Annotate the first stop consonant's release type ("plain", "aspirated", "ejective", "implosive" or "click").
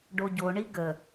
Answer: plain